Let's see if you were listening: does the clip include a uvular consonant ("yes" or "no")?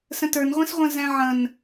yes